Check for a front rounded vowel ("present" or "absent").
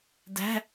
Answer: absent